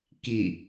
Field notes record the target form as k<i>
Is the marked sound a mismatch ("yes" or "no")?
no